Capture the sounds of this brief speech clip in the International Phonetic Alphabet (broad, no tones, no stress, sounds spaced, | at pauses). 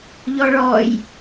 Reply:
ʎ ɔ ɭ ɔ j